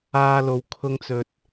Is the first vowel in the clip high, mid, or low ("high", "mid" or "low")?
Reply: low